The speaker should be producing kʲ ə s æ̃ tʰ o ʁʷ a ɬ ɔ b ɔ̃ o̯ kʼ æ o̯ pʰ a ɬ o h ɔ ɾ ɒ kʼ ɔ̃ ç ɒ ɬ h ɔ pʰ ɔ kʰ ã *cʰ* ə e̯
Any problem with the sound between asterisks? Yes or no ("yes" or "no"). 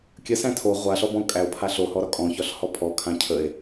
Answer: no